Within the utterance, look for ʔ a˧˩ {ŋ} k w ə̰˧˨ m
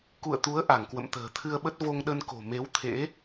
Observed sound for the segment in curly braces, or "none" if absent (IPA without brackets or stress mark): ŋ